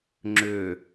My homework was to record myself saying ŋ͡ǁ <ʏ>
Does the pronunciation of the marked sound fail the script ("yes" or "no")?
no